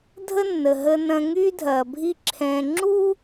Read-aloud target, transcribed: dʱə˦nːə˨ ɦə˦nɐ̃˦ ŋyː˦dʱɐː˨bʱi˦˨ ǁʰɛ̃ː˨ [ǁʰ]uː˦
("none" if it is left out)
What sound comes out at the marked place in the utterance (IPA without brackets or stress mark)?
ŋ͡ǁ